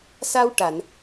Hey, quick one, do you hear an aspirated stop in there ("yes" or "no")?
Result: no